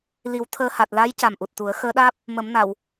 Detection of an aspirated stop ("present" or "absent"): present